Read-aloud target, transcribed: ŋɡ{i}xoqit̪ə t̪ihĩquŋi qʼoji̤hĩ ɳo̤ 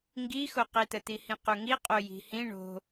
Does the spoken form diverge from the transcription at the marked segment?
no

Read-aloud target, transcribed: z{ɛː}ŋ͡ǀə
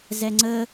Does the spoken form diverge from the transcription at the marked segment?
yes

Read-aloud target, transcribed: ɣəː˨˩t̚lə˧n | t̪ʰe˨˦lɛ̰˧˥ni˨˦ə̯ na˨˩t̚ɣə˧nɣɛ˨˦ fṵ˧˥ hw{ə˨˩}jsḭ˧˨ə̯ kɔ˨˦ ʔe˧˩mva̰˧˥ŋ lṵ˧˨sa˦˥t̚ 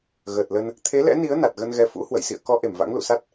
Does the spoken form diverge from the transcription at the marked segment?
yes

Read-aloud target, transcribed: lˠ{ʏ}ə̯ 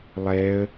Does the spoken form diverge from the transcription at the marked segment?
yes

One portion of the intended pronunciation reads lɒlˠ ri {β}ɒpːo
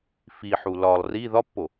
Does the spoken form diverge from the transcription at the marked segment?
yes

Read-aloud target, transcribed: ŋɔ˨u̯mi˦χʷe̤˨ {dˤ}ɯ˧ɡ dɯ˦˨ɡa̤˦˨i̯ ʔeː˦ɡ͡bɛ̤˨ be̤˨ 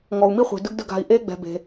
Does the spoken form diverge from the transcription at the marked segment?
yes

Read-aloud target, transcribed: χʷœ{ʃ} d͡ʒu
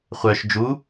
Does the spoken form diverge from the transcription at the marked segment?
no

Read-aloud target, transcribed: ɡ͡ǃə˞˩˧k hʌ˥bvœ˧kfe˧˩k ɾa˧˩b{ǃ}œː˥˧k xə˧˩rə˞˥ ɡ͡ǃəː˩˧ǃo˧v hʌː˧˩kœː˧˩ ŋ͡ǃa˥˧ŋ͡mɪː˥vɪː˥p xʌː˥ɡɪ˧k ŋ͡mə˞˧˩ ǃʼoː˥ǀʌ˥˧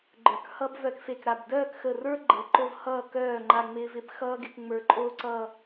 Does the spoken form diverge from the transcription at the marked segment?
yes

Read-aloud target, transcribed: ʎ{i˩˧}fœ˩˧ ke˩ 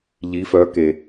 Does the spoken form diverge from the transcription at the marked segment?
no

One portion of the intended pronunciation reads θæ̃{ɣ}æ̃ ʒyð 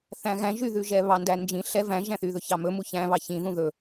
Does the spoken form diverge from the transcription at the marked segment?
no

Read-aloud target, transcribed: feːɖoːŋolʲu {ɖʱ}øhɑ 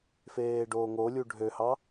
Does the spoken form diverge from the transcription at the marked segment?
no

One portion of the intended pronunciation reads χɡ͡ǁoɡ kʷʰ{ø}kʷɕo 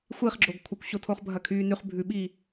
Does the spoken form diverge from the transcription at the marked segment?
yes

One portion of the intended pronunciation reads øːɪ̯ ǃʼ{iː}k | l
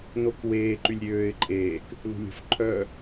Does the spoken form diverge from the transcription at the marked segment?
yes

